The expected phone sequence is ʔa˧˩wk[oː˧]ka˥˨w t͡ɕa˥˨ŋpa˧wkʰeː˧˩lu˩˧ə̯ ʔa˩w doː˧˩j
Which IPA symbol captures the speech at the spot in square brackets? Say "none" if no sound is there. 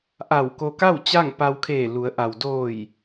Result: o˧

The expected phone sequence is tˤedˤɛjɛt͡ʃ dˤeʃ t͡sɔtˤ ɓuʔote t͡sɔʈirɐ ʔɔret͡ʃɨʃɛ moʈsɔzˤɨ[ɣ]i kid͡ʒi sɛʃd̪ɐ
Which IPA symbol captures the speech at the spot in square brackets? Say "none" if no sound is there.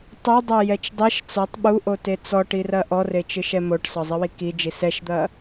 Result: w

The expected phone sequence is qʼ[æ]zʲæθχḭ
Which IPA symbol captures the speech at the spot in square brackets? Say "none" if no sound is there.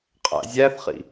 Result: æ̰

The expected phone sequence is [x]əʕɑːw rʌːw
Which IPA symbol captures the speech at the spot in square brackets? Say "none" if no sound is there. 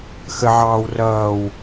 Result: x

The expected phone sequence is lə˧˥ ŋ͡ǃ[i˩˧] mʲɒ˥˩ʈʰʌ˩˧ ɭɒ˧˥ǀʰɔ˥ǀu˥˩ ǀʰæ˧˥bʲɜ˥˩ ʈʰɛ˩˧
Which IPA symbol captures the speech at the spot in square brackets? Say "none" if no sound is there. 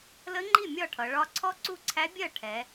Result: i˥˩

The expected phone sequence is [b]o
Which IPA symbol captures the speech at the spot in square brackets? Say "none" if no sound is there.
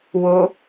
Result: w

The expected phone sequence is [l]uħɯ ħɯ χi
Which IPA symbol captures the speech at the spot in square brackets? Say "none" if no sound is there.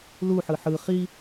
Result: l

